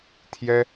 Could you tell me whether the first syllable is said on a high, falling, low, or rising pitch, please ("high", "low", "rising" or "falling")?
high